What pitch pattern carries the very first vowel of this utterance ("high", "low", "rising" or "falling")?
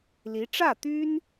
rising